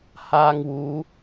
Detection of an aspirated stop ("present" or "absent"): absent